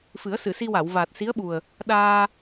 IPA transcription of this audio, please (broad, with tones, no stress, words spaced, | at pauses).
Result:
fɨ˨˩˦ə̯sɨ˨˩˨si˧wa˨˩˨w vaː˨˩t̚si˧˥ə̯ɓu˨˩ə̯ | ɗaː˧